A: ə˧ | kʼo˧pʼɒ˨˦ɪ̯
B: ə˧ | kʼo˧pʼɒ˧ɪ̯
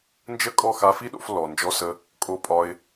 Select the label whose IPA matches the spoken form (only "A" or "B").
B